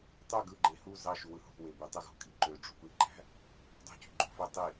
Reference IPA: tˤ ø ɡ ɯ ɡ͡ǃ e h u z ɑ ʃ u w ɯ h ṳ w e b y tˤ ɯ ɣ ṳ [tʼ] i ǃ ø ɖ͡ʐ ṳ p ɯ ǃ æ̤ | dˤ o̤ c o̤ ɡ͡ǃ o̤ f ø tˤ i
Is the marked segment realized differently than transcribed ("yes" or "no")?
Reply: yes